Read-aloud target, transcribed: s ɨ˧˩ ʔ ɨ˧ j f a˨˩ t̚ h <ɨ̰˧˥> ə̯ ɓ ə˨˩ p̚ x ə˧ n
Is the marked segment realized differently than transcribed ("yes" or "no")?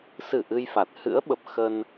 no